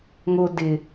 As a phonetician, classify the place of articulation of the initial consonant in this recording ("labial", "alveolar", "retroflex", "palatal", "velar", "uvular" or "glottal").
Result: velar